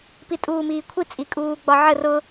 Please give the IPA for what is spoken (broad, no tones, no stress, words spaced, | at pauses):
pitʼuːmiːkʷʰi t͡sʼikʼuːɡ͡bɒʕə rʊ